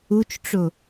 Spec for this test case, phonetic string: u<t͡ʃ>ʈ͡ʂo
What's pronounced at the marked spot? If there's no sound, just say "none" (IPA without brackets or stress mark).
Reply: t͡ʃ